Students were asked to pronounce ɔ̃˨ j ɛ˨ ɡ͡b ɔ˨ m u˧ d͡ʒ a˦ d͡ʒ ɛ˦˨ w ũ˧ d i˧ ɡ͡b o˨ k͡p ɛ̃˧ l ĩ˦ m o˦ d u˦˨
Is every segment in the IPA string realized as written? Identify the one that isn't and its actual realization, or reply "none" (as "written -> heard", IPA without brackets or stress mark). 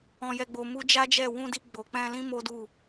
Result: ɔ˨ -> o˨